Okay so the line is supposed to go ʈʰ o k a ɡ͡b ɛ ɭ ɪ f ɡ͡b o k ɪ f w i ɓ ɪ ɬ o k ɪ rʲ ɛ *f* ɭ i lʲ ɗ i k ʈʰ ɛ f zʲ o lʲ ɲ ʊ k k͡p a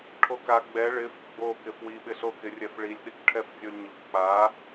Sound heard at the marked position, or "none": f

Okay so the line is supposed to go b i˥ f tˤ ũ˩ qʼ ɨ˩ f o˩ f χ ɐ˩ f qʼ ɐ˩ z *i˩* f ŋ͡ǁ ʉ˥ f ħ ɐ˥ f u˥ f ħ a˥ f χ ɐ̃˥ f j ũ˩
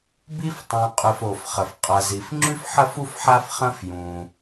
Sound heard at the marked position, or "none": i˩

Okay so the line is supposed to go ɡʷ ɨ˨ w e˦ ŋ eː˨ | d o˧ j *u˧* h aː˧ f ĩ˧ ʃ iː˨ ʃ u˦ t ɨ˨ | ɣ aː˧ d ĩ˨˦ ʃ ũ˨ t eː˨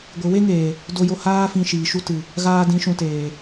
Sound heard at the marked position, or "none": o˧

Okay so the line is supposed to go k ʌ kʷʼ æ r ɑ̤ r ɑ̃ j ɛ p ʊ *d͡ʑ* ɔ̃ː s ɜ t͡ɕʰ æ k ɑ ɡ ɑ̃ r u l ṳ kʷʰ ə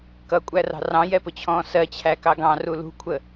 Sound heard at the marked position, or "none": t͡ɕʰ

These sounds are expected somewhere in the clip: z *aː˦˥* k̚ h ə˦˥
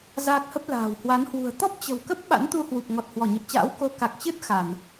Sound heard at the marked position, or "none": aː˦˥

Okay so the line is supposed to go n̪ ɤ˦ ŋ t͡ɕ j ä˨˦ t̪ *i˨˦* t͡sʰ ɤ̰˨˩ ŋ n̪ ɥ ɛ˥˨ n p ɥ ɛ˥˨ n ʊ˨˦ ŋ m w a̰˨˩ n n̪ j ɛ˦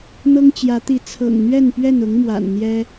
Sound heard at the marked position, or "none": i˨˦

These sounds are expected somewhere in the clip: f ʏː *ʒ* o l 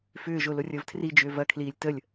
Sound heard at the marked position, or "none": ʒ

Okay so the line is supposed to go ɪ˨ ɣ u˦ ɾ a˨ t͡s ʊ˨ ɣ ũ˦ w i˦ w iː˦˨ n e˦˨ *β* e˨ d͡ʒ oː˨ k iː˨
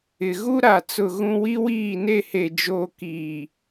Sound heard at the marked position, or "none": h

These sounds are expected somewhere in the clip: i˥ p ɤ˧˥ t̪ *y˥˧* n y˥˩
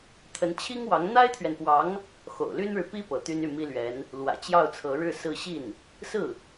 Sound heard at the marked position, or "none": y˥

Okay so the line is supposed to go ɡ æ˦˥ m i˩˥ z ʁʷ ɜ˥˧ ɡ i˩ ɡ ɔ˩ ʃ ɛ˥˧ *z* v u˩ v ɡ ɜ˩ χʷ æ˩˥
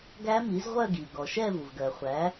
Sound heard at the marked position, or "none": none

